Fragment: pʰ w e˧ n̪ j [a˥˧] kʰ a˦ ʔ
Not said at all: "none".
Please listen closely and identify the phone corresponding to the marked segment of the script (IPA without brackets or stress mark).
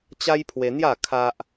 a˥˧